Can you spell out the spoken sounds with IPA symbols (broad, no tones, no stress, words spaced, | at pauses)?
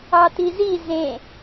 ɑtizi zẽ